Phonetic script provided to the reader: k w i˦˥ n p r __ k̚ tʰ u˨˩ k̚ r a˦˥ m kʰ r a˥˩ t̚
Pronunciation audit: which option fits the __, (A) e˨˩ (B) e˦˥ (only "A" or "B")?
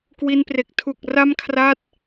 A